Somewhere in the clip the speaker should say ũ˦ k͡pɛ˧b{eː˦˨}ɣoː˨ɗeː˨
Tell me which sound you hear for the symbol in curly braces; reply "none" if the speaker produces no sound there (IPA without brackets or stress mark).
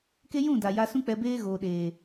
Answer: eː˦